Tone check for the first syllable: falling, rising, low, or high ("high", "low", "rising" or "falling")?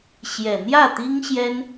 low